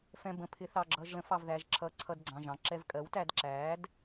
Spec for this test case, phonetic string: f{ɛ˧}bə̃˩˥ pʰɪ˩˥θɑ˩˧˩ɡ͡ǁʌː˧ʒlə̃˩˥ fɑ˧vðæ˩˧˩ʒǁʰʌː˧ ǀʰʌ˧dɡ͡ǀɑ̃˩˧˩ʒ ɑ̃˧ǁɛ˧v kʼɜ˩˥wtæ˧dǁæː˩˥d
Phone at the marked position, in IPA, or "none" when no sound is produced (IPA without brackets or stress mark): ɛ̃˧